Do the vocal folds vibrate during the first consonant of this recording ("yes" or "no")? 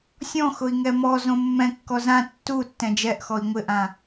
no